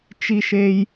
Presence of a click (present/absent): absent